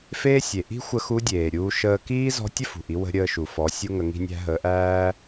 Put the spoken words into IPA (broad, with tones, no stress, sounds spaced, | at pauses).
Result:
f eː˥ sʲ e˩ ʔ i̤˥ xʷ ə˧ x u˧˥ dʲ eː˩ ɾʲ uː˧ ʃ əː˧ k iː˥ z ɔ̤˧˥ tʲ ə˥ f ṳ˩ ʔ i˩˧ w ə̤˧ ɾʲ əː˧ ʃ u˩ f ɔ˩˧ sʲ u˥ ŋ ə˧ ŋ i̤˧ nʲ æ̤˧ ɦ əː˩˧ ʔ æː˥